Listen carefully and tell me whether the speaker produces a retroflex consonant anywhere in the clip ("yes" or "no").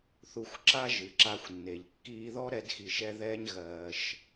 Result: no